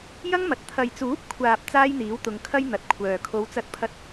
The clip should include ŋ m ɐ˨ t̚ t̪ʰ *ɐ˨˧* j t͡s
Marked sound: incorrect: ɐ˨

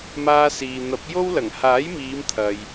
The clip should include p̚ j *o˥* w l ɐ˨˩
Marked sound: correct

